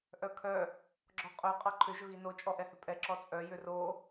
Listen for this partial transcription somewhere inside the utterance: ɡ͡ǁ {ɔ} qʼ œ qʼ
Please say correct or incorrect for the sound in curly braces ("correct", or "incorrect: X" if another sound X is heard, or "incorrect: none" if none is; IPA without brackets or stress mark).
correct